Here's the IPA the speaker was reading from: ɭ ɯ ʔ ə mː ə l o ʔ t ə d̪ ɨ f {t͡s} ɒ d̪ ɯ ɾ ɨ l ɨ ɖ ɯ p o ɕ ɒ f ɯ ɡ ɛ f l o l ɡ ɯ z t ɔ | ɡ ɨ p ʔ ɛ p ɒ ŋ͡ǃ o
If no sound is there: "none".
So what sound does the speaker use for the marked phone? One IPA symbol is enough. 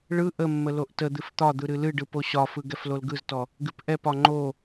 t̪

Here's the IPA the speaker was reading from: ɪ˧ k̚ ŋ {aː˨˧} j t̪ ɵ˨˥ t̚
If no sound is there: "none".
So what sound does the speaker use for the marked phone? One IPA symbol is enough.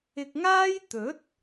aː˥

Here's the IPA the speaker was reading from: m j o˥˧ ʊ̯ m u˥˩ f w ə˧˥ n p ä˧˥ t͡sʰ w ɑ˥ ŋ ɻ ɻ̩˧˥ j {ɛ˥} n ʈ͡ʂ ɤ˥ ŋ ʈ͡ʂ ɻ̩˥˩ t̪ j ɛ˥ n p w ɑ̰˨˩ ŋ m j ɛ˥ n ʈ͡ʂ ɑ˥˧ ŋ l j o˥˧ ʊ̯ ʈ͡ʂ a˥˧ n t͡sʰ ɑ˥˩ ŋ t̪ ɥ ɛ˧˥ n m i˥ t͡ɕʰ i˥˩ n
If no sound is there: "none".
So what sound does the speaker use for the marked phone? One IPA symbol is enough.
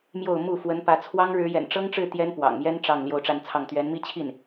ɛ̰˨˩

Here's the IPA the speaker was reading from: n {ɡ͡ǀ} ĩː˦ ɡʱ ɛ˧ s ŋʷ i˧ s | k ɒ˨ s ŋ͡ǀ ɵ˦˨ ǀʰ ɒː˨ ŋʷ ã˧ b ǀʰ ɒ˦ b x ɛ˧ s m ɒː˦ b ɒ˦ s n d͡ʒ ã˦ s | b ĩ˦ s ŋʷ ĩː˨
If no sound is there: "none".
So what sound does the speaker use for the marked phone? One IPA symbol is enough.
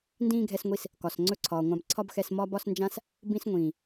d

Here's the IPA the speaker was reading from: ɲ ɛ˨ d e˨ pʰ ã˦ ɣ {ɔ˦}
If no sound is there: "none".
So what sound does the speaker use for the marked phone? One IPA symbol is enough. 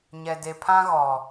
ɔ˨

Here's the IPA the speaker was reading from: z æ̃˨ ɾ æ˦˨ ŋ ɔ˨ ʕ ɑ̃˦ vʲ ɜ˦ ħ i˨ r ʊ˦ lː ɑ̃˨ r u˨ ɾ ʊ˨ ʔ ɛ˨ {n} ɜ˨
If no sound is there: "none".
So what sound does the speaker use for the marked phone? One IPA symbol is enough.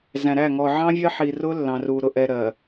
ɾ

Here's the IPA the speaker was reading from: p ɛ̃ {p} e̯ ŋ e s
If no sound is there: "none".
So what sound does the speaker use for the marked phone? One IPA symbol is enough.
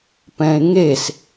none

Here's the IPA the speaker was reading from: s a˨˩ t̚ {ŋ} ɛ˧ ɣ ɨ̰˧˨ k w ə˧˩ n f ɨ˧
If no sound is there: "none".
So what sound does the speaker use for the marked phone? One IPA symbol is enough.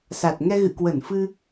ŋ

